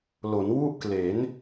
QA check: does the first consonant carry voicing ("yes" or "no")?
yes